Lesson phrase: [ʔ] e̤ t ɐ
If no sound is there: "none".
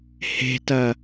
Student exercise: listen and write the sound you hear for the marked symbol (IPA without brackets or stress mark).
h